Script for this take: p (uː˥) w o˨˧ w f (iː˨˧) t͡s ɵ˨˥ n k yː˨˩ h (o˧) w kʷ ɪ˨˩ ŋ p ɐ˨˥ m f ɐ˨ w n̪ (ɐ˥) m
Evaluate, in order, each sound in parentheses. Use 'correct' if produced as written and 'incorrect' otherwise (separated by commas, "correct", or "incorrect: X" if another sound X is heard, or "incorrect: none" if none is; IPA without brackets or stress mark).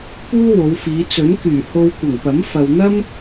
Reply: correct, correct, correct, correct